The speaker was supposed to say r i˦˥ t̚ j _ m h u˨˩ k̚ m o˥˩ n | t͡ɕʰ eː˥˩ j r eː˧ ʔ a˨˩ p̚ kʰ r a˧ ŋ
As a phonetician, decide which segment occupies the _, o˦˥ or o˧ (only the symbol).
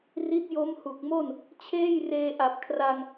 o˦˥